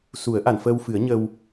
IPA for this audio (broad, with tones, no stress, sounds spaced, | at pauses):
s u˨˩˦ ə̯ ʔ a˨˩˨ n f əː˧ w f ɨ˨˩˦ ə̯ ɲ ə˧ w